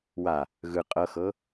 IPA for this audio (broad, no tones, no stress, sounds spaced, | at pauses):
w a | ɣ ɯ qʼ ɤ x ɤ